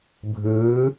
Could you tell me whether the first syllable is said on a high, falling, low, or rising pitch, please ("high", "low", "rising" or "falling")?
rising